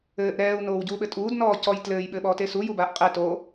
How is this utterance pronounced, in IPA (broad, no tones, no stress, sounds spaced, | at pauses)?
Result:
ɘː ʔ ɾ ɛː u̯ n oː w ɟ uː ɓ ɘ tʼ uː d n ɔː c ɔ j t l ɘː j ɓ ɘː ɓ ɔː t e s u j u b aː ʔ qʼ ɛ t o